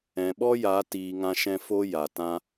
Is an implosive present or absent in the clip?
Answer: present